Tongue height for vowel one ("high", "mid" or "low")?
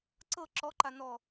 mid